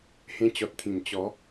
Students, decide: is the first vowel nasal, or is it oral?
nasal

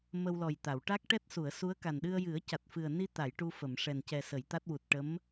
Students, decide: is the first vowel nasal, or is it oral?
oral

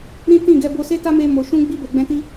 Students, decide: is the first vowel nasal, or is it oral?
nasal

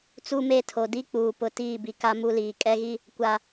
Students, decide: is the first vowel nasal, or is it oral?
oral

